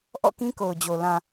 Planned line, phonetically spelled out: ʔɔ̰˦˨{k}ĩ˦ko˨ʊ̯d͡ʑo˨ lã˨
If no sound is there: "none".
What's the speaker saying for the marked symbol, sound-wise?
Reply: k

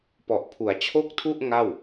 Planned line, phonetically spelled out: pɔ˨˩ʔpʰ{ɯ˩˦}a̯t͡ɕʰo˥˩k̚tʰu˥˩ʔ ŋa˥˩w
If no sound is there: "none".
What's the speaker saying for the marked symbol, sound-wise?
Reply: u˩˦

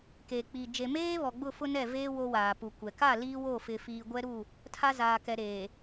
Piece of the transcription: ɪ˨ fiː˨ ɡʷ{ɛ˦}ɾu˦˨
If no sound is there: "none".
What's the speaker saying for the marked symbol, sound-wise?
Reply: ɛ˦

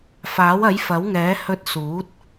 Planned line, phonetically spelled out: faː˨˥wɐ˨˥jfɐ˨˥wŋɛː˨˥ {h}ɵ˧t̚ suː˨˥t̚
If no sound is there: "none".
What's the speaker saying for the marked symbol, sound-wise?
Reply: h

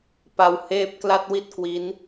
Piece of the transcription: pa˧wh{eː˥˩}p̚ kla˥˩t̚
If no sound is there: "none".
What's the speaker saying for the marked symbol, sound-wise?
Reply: eː˥˩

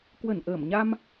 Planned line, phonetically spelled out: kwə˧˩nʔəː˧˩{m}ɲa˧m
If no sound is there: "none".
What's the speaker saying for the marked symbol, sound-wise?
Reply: m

